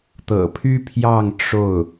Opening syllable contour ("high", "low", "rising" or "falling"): low